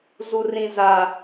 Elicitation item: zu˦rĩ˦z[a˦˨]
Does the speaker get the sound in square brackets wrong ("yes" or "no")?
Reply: yes